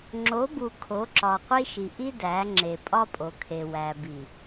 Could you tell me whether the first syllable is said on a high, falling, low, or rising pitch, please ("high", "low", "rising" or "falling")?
rising